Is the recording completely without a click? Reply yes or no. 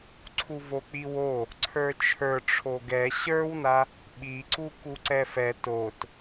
no